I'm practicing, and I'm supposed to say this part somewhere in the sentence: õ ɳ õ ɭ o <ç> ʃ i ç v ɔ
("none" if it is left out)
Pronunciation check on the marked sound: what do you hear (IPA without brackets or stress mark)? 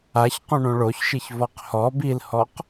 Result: ç